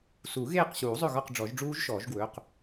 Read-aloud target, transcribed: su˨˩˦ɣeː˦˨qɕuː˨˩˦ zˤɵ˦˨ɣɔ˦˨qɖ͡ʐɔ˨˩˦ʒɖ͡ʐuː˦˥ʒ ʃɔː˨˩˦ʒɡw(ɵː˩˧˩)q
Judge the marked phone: correct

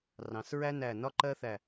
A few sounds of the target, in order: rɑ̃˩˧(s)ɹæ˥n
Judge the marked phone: correct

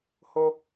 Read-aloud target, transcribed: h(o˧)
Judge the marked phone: correct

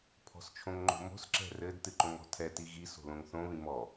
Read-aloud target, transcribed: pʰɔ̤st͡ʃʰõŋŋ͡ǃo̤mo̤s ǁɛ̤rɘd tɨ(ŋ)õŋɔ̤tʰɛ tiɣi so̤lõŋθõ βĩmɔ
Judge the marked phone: incorrect: ǃ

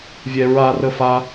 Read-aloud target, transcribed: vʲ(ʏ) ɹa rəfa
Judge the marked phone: incorrect: ɛ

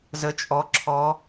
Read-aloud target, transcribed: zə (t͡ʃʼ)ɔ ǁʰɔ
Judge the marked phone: correct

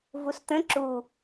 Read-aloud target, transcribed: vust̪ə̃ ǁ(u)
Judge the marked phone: correct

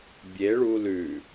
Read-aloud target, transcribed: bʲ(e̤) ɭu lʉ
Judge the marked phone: incorrect: e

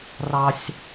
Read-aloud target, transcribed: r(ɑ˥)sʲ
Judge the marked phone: correct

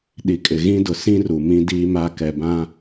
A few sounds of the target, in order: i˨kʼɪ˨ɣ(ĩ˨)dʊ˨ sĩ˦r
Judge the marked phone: incorrect: ĩ˦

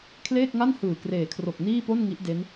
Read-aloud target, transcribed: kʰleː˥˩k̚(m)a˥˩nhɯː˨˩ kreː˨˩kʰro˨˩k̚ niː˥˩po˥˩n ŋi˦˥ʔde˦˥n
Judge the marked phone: incorrect: ŋ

